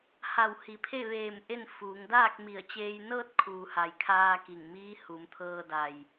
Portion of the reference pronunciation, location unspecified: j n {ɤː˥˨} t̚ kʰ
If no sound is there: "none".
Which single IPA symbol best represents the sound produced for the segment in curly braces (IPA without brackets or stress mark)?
ɤː˥˨